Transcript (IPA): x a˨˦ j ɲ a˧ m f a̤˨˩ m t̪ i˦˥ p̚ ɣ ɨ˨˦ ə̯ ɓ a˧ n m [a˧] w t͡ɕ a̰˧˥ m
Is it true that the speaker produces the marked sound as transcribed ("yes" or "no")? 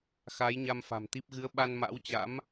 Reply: no